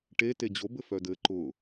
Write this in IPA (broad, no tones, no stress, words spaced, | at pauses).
ʈete d͡ʑobɘ fœdɘ ǃʊ